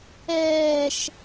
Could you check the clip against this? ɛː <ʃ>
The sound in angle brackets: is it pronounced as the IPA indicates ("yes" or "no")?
yes